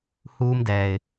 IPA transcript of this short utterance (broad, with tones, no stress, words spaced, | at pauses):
huː˦mdɛː˨ɪ̯